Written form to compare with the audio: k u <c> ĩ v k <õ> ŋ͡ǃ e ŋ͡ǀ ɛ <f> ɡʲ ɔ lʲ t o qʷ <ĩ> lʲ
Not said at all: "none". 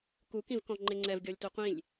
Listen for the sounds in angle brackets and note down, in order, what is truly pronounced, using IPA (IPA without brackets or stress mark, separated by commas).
k, ɔ̃, v, ĩ